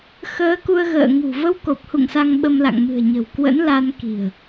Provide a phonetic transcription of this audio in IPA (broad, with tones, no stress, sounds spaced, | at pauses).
x əː˨˦ k u˧ ə̯ ɣ ə̰ː˧˨ ŋ ṳ˨˩ v ə˧ w k o˨˩ p̚ h ṵ˧˨ ŋ s a˧ ŋ ɓ ə˧ m l a̰˧˨ ŋ m ɨ̤˨˩ ə̯ ɲ ə̤˨˩ w k w ə̰˧˥ n l a˧ n k i̤˨˩ ə̯